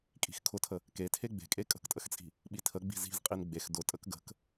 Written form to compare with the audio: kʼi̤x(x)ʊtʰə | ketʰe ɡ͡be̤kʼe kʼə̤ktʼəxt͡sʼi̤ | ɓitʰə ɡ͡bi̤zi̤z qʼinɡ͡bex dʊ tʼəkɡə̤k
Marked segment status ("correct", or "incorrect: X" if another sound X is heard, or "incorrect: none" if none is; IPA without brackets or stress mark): incorrect: kʰ